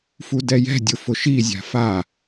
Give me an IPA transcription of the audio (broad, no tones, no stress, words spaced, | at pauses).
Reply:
fudɛjɛ̤dʲʊ fʊʃizʲa̤ fa